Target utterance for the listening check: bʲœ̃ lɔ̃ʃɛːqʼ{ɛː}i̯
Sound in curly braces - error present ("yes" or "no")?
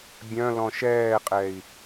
yes